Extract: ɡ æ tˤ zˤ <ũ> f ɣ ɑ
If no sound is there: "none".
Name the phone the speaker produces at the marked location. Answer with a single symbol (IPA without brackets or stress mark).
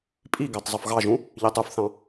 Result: u